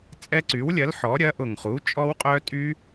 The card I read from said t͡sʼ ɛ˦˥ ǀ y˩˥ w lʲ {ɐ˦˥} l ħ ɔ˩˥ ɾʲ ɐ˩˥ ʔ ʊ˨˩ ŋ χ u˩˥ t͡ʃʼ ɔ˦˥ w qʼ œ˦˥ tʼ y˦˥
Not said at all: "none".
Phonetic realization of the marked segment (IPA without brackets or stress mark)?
ɐ˩˥